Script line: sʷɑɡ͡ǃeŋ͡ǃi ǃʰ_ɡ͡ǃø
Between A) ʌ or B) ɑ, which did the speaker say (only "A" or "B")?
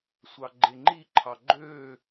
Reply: B